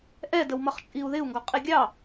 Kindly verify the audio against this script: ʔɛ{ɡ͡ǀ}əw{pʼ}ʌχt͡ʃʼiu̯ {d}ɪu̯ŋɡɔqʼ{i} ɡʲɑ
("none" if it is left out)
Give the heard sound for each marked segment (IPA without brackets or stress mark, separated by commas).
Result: d, m, ð, i